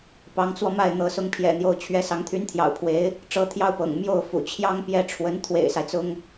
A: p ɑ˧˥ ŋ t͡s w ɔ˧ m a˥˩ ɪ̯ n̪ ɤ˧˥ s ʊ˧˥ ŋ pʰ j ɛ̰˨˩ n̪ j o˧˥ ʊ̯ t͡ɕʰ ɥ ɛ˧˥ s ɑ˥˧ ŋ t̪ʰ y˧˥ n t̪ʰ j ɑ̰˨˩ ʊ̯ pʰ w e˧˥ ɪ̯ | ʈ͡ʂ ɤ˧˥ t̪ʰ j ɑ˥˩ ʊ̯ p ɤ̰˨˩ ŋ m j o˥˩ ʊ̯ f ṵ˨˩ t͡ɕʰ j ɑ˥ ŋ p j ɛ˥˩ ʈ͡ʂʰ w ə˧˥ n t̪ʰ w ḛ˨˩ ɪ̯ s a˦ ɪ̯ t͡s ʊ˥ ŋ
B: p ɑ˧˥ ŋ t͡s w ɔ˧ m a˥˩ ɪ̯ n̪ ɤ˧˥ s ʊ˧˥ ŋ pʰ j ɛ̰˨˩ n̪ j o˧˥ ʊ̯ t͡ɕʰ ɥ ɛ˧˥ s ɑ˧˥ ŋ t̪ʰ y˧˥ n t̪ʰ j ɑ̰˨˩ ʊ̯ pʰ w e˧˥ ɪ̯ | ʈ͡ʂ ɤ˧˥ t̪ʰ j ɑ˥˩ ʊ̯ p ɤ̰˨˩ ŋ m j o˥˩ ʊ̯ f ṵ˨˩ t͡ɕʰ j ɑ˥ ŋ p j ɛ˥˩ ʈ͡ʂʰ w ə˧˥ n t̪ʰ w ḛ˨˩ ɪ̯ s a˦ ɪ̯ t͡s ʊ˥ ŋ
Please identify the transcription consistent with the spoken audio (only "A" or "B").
B